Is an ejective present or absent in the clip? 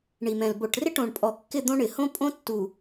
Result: present